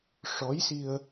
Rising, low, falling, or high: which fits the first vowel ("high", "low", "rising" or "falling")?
rising